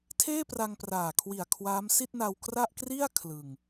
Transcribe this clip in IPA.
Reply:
tʰeː˥˩pra˧ŋ praː˨˩kʰwi˨˩a̯ kʰwaː˦˥m si˥˩t̚na˧wkra˥˩ʔ kri˥˩a̯ kʰlɯ˧ŋ

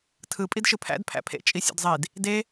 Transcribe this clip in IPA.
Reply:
tʰɯ pʼidʃɯpʰæ̰d pʰæ̰pʰḛ t͡ʃʼisʲṵdzˤid | de

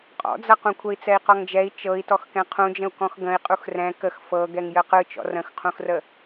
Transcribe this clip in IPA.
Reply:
qʼɔ̰d͡zʌqũ kʷʰɛi̯t͡sɛi̯qɔŋd͡ʒɛi̯ t͡ʃɤi̯tɔx kɛ̃qʰũd͡ʒə̃u̯ kɔ̃xɡə̃i̯ qʼuxrɛ̃ kəx fɤɡɛŋ jəqɯ t͡ʃɔ̰rə̃xqʰũxrə

